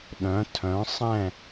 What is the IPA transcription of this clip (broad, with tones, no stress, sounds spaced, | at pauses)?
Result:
ɗ œ̃˩˥ tʰ œ̃˩˥ sˤ ɛ̃˥˩